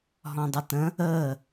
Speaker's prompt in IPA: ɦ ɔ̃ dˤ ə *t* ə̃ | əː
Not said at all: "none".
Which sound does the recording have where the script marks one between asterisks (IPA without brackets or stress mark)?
t